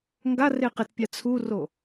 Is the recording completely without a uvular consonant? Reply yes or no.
no